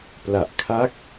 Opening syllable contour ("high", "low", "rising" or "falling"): low